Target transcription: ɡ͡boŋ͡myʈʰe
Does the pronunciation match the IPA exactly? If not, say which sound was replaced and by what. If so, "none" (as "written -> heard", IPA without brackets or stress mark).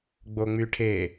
none